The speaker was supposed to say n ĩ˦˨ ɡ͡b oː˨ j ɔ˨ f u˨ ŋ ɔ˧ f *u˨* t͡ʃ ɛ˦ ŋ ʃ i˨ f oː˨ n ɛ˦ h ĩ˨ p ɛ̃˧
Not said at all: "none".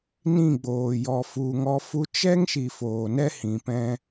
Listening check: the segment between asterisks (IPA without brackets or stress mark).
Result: u˧